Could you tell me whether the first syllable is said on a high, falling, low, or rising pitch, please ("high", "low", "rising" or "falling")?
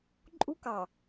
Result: high